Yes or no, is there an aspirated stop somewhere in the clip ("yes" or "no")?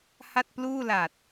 no